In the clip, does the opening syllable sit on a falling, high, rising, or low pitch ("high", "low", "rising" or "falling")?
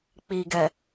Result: low